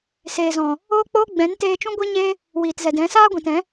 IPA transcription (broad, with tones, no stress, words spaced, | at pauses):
seː˨zɔ̃˨ | oː˦k͡poː˦ɡ͡bɛ̃˨˦n teː˧t͡ʃũ˦ɡʷe˦ɲeː˦ | wiː˨tzɛ˨dɛ̃˨˦ saː˦ɡʷĩ˨tɛ̃˨˦